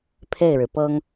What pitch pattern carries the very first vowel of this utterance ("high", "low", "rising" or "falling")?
falling